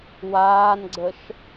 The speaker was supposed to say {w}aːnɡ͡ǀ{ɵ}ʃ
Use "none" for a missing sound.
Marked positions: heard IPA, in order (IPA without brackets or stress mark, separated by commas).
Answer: w, ə